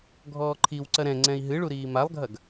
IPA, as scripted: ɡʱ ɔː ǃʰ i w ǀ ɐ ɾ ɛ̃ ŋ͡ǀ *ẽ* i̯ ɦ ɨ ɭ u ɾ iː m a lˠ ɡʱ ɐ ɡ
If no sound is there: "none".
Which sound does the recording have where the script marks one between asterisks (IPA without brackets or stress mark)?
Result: ɛ̃